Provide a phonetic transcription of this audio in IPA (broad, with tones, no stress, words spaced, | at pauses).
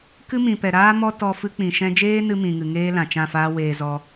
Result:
kɨ˦mĩ˨pɛ˨ ɾaː˦mɔ˦ tɔ˧ fɨ˧k͡pĩ˨ʃɛ̃˧d͡ʒeː˦ nɨ˦mĩ˨ŋɨ˨ŋeː˦ lã˨t͡ʃã˦˨faː˦ weː˧ zɔ˦